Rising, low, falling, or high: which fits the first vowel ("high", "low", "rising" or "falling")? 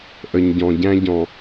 low